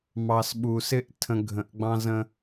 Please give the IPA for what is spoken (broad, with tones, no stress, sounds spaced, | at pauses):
m ɑ˨ s ɓ u˨ s ɪ˦ ʔ tʰ ə̃˦ ɡʱ ə̃˨˦ ʔ ɡ͡b ɑ̃˦ z ə̃˦